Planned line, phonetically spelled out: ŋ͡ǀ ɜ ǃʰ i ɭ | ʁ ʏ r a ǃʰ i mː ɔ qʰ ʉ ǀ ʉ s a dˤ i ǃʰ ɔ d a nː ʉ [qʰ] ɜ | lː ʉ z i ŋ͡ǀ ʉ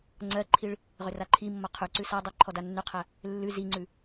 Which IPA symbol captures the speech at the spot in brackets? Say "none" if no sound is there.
qʰ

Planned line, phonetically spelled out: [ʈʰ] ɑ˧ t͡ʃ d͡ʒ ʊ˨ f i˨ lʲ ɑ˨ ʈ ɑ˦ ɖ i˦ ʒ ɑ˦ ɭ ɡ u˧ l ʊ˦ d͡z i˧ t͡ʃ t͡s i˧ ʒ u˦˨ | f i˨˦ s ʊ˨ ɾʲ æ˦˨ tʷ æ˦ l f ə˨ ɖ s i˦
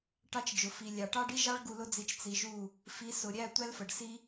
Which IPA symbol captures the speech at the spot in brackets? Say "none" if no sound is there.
ʈ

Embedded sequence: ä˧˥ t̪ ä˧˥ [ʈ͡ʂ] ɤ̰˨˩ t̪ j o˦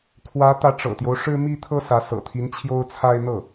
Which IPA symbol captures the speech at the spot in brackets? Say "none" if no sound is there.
ʈ͡ʂ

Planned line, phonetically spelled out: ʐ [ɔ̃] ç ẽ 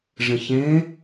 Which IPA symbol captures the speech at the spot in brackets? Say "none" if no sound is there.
ə̃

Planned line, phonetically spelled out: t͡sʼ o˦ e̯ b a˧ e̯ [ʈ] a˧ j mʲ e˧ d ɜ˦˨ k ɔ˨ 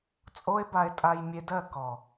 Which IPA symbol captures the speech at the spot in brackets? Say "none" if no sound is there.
tʼ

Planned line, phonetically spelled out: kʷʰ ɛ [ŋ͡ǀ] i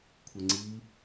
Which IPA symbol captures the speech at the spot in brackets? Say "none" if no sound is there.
ŋ͡ǀ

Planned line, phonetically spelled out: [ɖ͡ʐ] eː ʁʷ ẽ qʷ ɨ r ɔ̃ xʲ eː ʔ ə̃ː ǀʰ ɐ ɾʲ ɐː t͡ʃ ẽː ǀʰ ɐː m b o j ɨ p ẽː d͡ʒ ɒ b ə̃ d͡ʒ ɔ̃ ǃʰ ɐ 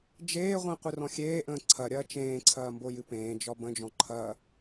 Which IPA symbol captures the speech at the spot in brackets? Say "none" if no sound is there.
d͡ʒ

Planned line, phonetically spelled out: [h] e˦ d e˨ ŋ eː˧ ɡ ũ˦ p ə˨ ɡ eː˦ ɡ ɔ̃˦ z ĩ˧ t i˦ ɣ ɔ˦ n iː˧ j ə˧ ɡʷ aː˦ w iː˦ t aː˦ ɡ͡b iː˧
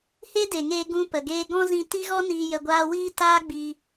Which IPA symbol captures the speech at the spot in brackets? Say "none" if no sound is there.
h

